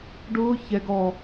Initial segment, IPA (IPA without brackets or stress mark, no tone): ɖ